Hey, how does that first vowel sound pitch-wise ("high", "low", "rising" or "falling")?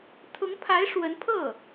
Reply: rising